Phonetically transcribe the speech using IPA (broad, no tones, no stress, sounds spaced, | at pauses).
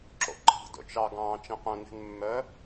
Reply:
ǁ o̰ ǃ ɑ̤ d o̰ t͡ʃ ɑ ɡ ɑ̃ː t͡ʃ ɛ̃ q œ̃ n e̤ n mː œ